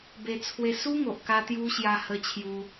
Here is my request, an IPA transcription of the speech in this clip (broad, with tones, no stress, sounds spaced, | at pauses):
b e˧ t͡sʰ w e˧ s u˦ ŋ o˨ ʔ k a˧ t̪ j u˦ ɕ j a˧ h ə˧ t͡ɕʰ j u˧